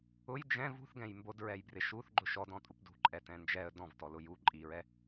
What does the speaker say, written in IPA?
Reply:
ʊ j d͡ʒ ɛ̃ v ṳ θ ɡ ɛ̃ j m b o d ɹ ɛ j b r ɪ ʃ u θ ɡ͡ǃ ʊ ʃ ɔ d ɔ̃ tʼ u p d ṳ ǃʼ ɛ t ɛ̃ n d͡ʒ ɛ ə̯ d ɔ̃ v t ɔ l ʊ j u ǃʼ i ɹ ɛ

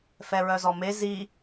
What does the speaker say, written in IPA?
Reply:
f ɛ ɹ œ z ɔ m e z i

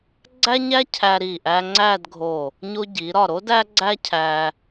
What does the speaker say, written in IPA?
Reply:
ɡ͡ǀ æ˥ ɲ æ˥ cʰ æ˧ ɾ i˧˩ ʔ æ˧ ŋ͡ǀ æ˥˧ d ɡʱ o˧˩ | ɲ o˧ ɟ i˩˧ ɾ ɒ˧˩ ɾ o˥ d æ˥ ɡ͡ǀ æ˥ cʰ æ˧

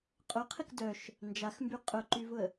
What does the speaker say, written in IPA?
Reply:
qʼ ʊ qʰ ɪ k d œ ʃ | n d͡ʒ a x m b y qʼ ʊ ǃ y v ʊ ə̯

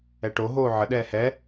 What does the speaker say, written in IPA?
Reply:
ɛ ʈ o ɦ oː ʕ ə ɗ ɛː h ɛ

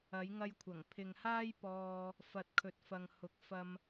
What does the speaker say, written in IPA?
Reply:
ɐ˨˧ j ŋ ɐ˧ j kʷʰ ɐ˨˩ ŋ pʰ ɪ˨ ŋ h aː˥ j p ɔː˧ | f ɐ˨ t̚ kʰ ɵ˨ t̚ f ɐ˨ ŋ h ʊ˨˥ k̚ f ɐ˧ m

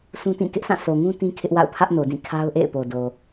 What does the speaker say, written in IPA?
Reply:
s ũ˦ t ĩ˦˨ k ɪ˦ ʔ sʰ ã˦˨ sʰ o˨ ŋ ũ˦ t ĩ˦ kʰ ɪ˦ ʔ w a̰˦˨ ʊ̯ pʰ ä˦ ʔ n o˨ d ĩ˦˨ kʰ a˦ ʊ̯ ʔ ḛ˦˨ ɪ̯ p o˨ d o˨

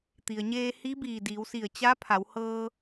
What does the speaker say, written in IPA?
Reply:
t̪ i˩ ə̯ ɲ eː˧ h i˧˥ b iː˧˩ d iː˩˧ w s i˧˩ ə̯ t͡ɕ a˧˥ pʰ a˩˧ w h ɤː˧

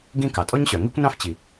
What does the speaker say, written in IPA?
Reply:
ɡ ĩ˥ k ɑ˩ tʼ ɔ˥ ɲ ɕ œ˩ ŋ i˥ kʷ n ɑ̃˥ f t͡ɕ i˩

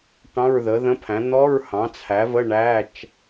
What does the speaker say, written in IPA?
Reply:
ʈ ɑ̃˧˥˧ ɹ ð ə˩˥ ð ə̃˧˥˧ pʰ æ̃˩˥ n̪ ɔ˧˥˧ ɹ h ɑ̃˩˥ t͡sʰ æ˩˥ v ə˧˥˧ ɳ æ˧˥˧ t͡ʃ

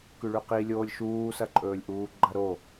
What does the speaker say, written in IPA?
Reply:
k ʉ ɭ ʉ q i lʲ oː lʲ ʃ uː s ɐ ǃʼ ɵː lʲ ʔ uː ɡ͡ǃ ɐ ɾ o

